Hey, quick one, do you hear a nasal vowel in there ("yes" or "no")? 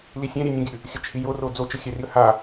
yes